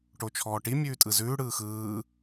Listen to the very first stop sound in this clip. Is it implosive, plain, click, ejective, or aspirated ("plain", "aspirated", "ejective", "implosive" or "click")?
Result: plain